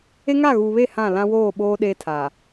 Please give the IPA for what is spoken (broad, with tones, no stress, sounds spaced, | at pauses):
e˦ ŋ a˦˨ ɣ uː˨ β e˦˨ h ã˦˨ l ã˦ w oː˦˨ ɓ oː˦ ɗ eː˦ tʰ a˨